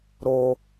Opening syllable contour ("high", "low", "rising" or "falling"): low